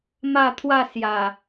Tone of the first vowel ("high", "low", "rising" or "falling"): falling